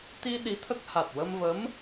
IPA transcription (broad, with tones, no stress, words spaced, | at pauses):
t̪i˧ ɗi˧˥t̪ʰə˦˥k̚ ha˨˩t̚wə˧mvə˧˥m